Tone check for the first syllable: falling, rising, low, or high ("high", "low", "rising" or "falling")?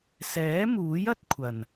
rising